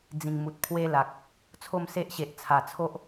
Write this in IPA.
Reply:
d͡z ĩ˨˩ ŋ m u˨ t̚ pʰ w e˦ l a˨ k̚ | t͡sʰ o˥˧ m s e˦ ʔ ɕ e˨ ʔ t͡sʰ a˨˩ t͡sʰ o˦ ʔ

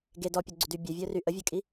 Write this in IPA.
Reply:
ɡ e d ɔ pʲ ɔ ɡ͡ǀ u d y bʲ œ vʲ œ r y ʔ ə vʲ œ kʼ i

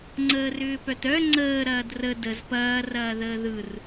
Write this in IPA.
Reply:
ŋ͡ǀ əː r ʏː p œ t œ ŋ͡ǀ əː ɾ ɐː d r ə d ə z p ɐː r ɐː ð əː ð ɯ r

